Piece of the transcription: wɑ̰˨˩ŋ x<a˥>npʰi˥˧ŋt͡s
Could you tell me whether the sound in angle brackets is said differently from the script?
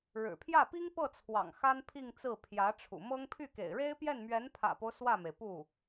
no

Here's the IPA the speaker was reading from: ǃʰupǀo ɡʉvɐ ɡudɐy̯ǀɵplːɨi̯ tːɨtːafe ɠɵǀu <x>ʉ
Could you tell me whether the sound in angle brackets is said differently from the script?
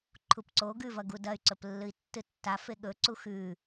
no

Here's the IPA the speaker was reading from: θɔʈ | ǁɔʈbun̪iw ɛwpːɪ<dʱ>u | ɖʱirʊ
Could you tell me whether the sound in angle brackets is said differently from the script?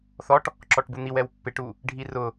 yes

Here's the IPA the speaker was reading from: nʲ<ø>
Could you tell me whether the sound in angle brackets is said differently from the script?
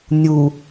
yes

